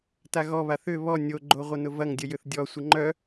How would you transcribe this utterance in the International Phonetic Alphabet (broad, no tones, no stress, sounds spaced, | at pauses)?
t a ɣ ɔ β a θ ʏ β ɔ nʲ o ɡ͡ǃ o ʁʷ ə n ʊ v ɐ ŋ dʲ ə j ʏ θ dʲ ɔ sʷ ə ŋ͡ǃ œ